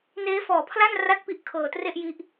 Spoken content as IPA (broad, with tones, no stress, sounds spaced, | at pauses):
n eː˦˥ f ɔː˨˩ pʰ l a˥˩ n r a˥˩ t̚ p i˥˩ ʔ kʰ ɤː˧ t r e˥˩ ʔ j i˦˥ ʔ